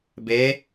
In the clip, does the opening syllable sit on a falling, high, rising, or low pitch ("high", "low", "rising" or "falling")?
rising